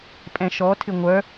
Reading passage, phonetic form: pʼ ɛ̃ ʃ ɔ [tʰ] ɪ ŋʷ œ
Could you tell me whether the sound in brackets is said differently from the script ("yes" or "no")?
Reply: no